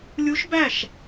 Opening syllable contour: rising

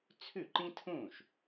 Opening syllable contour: falling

